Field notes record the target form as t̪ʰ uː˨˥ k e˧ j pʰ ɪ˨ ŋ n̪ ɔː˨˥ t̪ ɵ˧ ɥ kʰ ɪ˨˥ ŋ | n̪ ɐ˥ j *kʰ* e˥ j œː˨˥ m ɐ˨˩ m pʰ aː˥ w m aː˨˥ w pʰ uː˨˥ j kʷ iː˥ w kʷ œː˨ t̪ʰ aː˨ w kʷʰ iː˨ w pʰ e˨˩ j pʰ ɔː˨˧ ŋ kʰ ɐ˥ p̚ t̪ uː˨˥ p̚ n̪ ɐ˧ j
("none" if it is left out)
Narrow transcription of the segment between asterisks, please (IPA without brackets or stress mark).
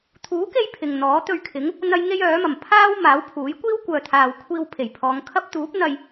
ŋ